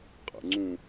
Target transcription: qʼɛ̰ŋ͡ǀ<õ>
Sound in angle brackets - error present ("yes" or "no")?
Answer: yes